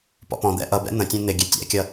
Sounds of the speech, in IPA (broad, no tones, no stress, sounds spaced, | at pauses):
p ɔ̰ p ɔ̃ d̪ ɛ̰ ʔ ʌ b ɛ̰ n̪ ə̃ tʲ ɛ̃ n̪ ɪ ɡʲ ɛ tʲ æ̰ kʲ ʌ